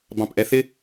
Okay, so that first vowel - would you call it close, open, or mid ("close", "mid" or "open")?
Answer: open